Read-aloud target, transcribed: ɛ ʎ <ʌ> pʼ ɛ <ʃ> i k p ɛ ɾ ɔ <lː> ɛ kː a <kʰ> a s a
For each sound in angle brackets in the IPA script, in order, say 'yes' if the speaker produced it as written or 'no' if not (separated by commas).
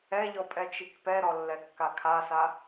no, no, yes, yes